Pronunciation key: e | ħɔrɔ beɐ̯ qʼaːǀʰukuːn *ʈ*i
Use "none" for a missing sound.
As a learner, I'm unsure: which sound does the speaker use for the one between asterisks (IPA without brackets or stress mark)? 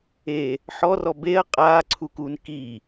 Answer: k